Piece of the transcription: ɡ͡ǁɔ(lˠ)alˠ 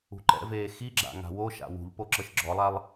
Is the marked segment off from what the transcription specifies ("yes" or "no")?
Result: no